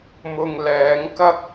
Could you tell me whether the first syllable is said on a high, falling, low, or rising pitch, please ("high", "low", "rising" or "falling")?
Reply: low